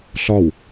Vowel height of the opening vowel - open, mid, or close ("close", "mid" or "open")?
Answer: open